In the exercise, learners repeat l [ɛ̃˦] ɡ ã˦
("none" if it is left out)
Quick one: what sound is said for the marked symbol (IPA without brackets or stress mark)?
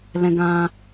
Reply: ɛ̃˦